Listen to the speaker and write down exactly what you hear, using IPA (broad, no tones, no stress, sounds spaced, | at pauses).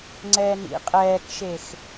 ŋ͡ǀ ɛː n ḭ qʼ ɛː k ʃ e x